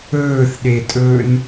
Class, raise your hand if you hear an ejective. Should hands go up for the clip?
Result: yes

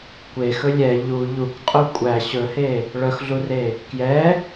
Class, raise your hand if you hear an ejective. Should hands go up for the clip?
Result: yes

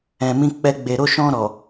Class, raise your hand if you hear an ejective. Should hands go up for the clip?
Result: no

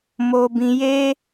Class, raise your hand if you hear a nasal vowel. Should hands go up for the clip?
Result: yes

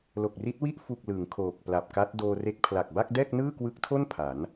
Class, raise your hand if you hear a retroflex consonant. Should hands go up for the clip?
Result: no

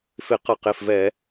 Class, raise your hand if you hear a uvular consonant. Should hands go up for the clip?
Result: yes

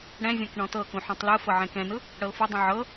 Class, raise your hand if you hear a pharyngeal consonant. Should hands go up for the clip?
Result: yes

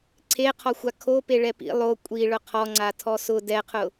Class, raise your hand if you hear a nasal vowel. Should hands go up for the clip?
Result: no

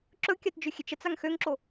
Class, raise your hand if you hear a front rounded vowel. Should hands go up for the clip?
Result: yes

